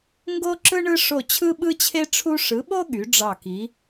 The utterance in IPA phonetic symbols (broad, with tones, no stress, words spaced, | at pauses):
ŋɡo˥ǁɯ˥ ɳɯ˥ ʂo˦˨ t͡ɕʰɯ˥ɓɯ˥t͡ɕʰe˥ ʈ͡ʂʰu˥ ʂɯ˨˥ɓo˥ ɠy˨˥ɖ͡ʐɑ˦˨ki˨˥